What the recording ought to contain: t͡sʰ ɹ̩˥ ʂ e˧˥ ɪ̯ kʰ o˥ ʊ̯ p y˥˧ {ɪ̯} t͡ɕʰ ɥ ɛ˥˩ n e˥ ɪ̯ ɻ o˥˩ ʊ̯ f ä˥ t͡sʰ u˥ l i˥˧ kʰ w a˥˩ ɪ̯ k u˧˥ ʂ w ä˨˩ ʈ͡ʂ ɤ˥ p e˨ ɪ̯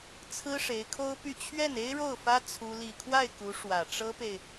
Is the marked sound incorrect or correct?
incorrect